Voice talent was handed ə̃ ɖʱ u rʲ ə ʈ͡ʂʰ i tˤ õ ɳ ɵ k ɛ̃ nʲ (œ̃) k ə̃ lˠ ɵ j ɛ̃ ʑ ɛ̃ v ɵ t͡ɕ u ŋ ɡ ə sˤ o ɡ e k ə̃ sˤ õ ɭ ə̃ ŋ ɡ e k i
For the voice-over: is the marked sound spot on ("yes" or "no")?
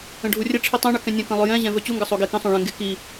no